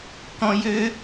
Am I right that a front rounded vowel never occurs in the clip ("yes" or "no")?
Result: no